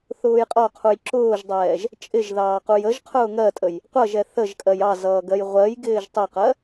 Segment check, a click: present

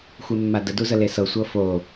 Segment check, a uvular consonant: absent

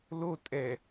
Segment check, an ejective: present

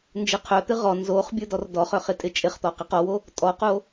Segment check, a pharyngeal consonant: absent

